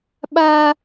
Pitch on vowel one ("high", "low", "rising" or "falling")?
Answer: high